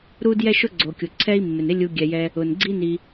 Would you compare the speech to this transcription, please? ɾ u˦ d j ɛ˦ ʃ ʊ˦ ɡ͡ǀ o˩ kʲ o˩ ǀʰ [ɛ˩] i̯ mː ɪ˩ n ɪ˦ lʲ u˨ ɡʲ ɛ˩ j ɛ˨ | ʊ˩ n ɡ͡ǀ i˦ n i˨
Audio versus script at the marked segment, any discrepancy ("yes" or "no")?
yes